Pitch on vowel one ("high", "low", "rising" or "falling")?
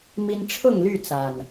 high